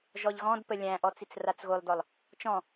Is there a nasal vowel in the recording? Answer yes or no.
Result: yes